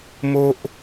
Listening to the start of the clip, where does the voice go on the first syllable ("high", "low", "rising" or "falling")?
high